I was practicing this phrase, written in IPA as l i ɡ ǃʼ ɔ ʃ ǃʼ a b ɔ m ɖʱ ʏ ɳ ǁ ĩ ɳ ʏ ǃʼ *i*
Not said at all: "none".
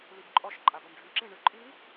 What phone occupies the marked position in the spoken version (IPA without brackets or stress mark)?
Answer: i